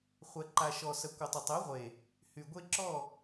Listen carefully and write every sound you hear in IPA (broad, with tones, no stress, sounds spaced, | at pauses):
χʷ ɛ˨ ǃ a˨ ʃ ɔ˨ s ə˨ kʷ ə˨ tˤ ə˨ tˤ ɛ˨˦ ʁʷ e˨ | h y˨ ɡʷ e˦ ǁ ɔ˦˨